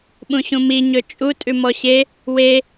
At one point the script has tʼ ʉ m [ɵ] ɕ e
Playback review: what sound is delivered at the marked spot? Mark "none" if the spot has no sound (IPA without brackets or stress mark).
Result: ɔ